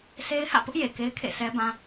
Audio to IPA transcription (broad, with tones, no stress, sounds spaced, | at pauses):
sʰ e˦ ɪ̯ h ä̰˦˨ p ʊ˦ ʔ j e˨ k e˦ ɪ̯ kʰ ḛ˦˨ sʰ ɛ˦ b ã˦